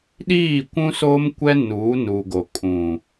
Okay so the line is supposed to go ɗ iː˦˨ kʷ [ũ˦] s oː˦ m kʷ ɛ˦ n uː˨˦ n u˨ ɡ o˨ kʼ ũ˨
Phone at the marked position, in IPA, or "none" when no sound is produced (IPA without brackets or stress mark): ũ˦